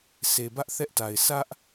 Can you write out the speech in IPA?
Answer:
se˨ bä˦ʔθɛ˦ʔta˨ɪ̯ sʰä˦ʔ

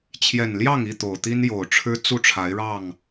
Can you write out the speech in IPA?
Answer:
t͡ɕʰjɛ˨˩nljɑ˥˨ŋi˥˨ t̪o˨˩ʊ̯t̪i˦njo˨˩ʊ̯ʈ͡ʂʰɻ̩˦ t͡su˥˨ʈ͡ʂʰa˨˦ɪ̯ɻɑ˥˨ŋ

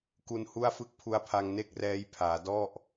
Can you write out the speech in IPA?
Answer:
ku˦˥nhu˥˩a̯fɯ˥˩k̚ pʰu˦˥a̯pʰa˧ŋne˥˩k̚ rɛː˦˥j pʰaː˩˦dɔ˥˩ʔ

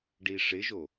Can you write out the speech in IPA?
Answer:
ɖiʂɪʒo

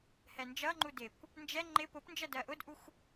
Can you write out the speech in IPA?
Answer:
hɛnd͡ʒʌŋ͡ǃu dɪkʷ | nd͡ʒɛ ŋ͡ǃɪ pʊpnd͡ʒɜ dɜʔʊdʔuxʷ

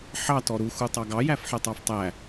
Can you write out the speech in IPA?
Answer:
ħɑ tɔɾu xutˤɑɡɑ jæfħɛtˤɑftˤæ

